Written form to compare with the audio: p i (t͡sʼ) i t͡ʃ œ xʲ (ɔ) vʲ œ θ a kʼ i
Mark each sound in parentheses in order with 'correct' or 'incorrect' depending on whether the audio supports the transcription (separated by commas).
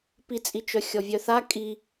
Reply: correct, correct